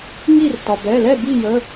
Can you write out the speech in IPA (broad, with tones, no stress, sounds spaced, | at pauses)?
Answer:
ŋ i˥˨ r t ɒ˩ b ɛ˩˧˩ l ɛ˥˨ b i˥˨ j ə˩˧˩